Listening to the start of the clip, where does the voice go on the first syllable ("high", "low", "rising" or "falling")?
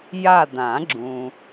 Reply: falling